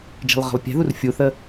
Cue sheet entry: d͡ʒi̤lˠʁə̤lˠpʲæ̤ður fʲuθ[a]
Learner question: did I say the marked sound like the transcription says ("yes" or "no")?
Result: no